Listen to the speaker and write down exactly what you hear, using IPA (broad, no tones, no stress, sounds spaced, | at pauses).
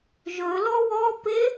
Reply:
ʒ ɵ l ɔ w ɔ p e